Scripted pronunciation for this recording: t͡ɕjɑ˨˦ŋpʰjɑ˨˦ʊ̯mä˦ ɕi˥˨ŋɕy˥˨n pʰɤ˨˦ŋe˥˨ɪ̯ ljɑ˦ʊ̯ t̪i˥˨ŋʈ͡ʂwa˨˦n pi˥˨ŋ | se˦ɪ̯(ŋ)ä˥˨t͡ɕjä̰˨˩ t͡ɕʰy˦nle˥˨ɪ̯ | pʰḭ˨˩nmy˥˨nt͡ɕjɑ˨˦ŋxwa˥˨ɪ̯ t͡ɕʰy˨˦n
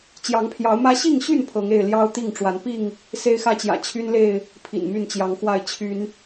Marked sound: incorrect: x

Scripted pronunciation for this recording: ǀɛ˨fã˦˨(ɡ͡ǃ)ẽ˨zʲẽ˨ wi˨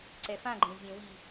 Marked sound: correct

